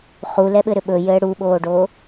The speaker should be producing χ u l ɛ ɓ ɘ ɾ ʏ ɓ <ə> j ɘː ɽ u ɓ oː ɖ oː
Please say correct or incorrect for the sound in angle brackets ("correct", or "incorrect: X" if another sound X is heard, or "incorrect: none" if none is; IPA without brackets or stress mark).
incorrect: ɵ